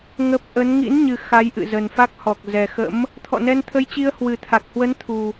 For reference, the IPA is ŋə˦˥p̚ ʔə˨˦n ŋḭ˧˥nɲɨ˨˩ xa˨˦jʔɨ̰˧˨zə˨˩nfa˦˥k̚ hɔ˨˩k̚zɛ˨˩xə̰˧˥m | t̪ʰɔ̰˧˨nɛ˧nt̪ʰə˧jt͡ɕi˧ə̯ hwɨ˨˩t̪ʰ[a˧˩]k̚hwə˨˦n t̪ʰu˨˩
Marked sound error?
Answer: yes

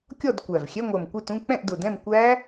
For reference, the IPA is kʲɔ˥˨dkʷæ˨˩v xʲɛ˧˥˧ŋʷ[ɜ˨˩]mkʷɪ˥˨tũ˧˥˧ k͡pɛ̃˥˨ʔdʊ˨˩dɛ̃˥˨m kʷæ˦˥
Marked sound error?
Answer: no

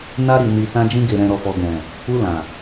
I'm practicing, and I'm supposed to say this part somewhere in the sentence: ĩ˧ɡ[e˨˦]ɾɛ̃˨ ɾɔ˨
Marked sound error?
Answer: yes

